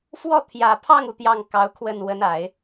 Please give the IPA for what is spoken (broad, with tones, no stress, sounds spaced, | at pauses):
f w ɔ˥˩ t̪ʰ j ä˨˩ pʰ ɑ˥˩ ŋ u˩ t̪ j ɑ˥˩ ŋ k ɑ˧˥ ʊ̯ kʰ w ə˥˩ n w ə˧˥ n a˨˩˦ ɪ̯